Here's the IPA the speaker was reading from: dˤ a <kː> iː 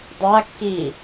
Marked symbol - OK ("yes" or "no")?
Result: yes